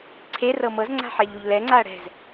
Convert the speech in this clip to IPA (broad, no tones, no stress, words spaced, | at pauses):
ǀʰe rɤmɤzŋ͡ǀa̤ ħɛʎuʎlɛŋ͡ǀaɐ̯ ɽɛ̤z